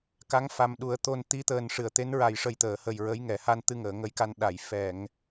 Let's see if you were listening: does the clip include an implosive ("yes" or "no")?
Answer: yes